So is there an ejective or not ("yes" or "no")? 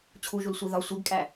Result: yes